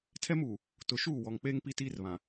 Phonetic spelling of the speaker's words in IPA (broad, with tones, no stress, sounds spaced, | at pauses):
tʰ ɛ˦ m uː˨ | t ʊ˨ ʃ uː˦˨ w ɔ˨ ŋ k͡p eː˦ ŋ p i˦ t iː˦ r β ã˨